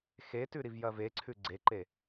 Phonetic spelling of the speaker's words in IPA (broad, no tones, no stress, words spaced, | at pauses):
xetʉ ɾivjɐveǀʰʉ ɡ͡ǀeǃe